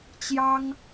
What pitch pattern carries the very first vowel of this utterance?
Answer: high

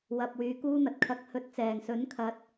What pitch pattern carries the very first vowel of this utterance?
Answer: low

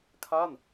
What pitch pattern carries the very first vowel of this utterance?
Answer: falling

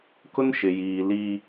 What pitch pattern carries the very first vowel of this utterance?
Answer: high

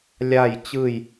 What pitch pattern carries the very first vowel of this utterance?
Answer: falling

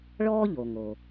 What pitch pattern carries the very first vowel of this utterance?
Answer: high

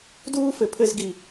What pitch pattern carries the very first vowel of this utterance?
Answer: high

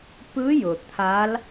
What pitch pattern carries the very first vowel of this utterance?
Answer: rising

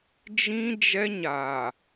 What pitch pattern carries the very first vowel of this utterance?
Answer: high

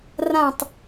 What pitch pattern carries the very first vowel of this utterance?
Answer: falling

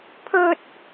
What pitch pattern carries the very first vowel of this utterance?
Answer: high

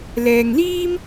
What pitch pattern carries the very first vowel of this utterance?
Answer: low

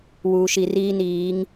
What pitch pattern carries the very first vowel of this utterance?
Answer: low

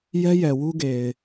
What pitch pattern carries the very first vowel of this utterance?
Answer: high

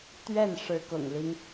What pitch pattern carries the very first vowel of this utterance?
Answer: falling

